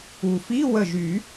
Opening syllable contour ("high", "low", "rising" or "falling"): low